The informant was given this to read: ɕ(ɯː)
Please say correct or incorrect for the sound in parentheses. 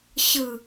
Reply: incorrect: ɯ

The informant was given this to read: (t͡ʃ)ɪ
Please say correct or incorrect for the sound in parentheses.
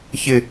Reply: incorrect: ç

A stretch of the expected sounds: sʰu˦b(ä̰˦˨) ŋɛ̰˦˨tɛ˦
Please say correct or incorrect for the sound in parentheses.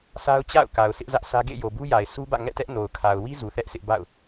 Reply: correct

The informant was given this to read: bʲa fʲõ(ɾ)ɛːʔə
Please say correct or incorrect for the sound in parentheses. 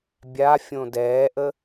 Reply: incorrect: d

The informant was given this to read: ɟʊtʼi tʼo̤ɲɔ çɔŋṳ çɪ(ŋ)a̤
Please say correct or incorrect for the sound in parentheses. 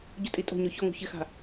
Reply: incorrect: x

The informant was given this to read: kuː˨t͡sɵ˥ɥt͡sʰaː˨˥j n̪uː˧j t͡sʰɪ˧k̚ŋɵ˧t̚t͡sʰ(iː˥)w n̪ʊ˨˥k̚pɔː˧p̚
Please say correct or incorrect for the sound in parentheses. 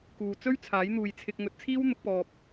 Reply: correct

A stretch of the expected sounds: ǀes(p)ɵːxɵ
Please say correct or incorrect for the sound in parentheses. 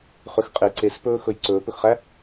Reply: correct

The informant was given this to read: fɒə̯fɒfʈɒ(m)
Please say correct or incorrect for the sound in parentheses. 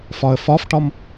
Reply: correct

